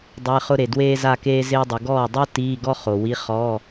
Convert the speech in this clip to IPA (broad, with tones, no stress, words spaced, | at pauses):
dˤɪː˧˥˧χʊ˥ɾe˨ dweː˥za˥˧ keː˥ zɪː˥dˤɪ˨˦ ɡɔː˥˩dˤo˥ tiː˧˥˧ɡɔ˥χo˨wi˧˥˧ χɔ˧˥˧